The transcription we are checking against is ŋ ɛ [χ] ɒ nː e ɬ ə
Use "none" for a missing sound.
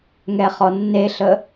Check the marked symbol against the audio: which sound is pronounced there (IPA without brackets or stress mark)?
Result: χ